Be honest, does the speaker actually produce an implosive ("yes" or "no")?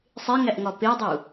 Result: no